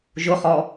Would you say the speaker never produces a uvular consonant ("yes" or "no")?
no